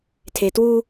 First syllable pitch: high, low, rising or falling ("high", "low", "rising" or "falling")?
low